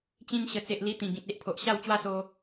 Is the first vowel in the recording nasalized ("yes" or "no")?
yes